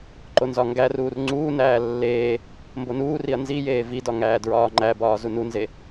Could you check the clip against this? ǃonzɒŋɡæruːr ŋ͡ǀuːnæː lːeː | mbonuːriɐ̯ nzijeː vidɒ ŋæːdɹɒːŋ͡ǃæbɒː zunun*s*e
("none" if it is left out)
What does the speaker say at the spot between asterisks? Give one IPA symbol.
z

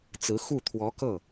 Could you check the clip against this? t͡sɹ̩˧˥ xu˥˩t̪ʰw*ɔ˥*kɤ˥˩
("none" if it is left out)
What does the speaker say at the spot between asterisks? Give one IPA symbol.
ɔ˧˥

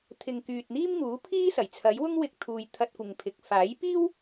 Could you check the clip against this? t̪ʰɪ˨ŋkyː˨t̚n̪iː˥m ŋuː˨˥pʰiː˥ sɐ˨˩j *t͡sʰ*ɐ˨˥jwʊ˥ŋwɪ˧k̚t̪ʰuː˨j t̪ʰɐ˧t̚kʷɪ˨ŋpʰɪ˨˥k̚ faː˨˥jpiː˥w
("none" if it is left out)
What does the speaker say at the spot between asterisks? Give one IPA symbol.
t͡sʰ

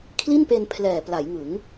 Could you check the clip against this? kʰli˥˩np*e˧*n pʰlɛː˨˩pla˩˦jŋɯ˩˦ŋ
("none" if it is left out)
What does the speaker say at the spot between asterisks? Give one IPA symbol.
e˧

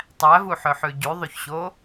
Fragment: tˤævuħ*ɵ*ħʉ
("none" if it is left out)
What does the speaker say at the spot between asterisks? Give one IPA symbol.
ɵ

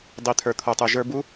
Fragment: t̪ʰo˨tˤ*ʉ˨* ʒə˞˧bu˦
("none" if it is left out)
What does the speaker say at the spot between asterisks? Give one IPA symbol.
ø˨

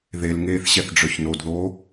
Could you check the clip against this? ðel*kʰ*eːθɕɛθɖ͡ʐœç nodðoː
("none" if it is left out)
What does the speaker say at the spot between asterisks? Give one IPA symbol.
ŋ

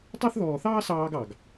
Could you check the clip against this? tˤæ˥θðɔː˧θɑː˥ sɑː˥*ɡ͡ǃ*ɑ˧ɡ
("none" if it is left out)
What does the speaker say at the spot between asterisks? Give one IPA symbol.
ɡ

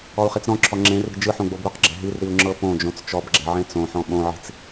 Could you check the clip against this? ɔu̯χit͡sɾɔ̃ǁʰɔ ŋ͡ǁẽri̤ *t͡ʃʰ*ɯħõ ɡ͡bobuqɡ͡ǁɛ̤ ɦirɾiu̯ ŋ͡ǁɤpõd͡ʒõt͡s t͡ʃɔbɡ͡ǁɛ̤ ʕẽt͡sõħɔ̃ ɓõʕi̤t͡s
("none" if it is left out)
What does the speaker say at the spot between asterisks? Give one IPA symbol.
d͡ʒ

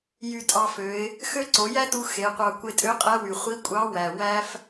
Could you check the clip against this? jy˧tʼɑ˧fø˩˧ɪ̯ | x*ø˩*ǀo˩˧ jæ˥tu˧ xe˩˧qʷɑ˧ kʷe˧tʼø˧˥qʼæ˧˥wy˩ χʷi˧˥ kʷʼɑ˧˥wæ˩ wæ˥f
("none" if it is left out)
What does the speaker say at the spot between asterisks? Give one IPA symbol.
ø˥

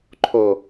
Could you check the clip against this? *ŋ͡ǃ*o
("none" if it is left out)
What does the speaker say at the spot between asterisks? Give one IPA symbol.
ǃʰ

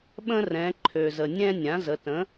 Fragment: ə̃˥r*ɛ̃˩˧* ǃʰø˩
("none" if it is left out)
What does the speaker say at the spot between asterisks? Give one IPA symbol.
ɛ̃˩˧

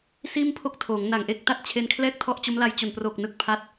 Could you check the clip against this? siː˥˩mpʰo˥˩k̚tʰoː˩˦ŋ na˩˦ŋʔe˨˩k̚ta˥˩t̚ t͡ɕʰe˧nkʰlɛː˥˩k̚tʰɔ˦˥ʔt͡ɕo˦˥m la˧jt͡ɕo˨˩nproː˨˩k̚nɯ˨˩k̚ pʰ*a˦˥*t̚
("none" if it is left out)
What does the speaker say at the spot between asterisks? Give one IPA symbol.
a˦˥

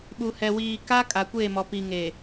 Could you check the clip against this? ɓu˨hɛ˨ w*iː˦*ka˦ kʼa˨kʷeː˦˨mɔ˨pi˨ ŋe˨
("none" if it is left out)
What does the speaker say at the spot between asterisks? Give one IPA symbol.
iː˨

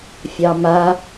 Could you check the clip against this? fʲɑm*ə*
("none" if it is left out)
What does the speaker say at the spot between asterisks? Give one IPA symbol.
a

